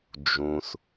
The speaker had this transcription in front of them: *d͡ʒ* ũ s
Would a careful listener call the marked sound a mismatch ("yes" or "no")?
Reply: no